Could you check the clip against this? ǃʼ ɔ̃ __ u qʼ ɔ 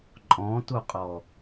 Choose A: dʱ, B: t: B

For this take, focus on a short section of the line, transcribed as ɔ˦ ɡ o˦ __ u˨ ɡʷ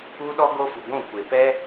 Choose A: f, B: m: A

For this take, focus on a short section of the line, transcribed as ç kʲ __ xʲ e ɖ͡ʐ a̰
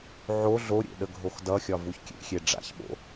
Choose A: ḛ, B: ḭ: A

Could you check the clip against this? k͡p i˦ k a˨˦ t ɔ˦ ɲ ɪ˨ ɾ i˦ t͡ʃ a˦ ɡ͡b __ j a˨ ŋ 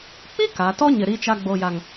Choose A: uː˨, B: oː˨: B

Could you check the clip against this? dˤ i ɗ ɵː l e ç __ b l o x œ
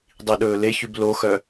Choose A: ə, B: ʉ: B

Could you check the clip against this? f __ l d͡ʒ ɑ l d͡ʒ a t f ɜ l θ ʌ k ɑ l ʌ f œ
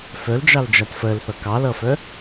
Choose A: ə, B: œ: B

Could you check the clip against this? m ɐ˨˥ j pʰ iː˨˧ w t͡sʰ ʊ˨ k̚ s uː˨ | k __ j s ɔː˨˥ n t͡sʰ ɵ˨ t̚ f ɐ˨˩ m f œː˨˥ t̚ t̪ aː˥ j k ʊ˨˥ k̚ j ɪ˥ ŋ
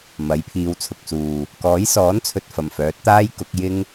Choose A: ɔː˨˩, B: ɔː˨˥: B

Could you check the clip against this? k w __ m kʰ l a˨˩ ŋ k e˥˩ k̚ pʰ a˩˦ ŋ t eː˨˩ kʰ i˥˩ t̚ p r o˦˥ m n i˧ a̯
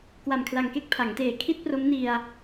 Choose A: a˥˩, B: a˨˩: B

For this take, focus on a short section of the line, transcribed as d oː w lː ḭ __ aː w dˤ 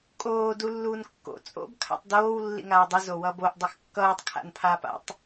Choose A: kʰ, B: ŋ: B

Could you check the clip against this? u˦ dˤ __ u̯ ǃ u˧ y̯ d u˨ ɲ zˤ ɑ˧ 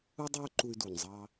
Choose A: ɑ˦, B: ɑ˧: A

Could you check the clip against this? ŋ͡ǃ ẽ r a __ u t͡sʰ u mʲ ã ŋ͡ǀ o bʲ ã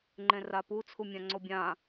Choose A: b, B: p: B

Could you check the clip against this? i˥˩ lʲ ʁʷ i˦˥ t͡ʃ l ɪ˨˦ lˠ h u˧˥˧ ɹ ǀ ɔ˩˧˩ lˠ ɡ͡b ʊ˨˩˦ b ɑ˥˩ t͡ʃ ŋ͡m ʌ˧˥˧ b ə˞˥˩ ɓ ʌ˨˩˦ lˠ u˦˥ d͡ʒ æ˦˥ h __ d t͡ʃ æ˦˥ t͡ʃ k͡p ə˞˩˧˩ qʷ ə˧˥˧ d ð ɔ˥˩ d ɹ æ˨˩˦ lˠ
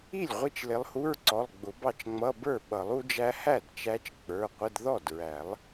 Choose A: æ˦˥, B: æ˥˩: B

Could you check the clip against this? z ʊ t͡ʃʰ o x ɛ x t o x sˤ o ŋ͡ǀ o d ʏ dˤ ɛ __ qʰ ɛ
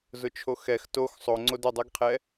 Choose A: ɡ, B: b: A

